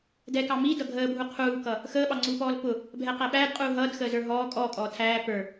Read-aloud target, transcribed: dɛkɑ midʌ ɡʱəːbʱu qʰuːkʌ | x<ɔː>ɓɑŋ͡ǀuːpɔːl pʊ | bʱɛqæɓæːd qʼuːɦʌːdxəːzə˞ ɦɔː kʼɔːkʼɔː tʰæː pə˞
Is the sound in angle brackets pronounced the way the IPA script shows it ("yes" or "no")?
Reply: no